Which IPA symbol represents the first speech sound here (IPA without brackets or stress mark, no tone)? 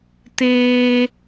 t